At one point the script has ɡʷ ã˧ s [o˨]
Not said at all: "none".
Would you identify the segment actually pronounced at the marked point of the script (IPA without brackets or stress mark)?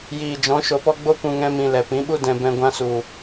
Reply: u˨